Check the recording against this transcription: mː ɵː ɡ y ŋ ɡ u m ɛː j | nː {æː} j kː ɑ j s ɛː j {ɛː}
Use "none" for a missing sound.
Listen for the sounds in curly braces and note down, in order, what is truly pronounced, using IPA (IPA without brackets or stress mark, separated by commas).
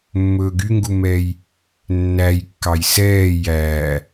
æ, æː